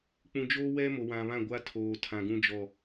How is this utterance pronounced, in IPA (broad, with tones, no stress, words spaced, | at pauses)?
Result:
k͡pũ˨d͡ʒoː˦wɛ˦ mo˨wã˨βã˦˨ɡʷa˦ tʰoː˨tʰã˨ɡũ˦d͡ʒɔ˦˨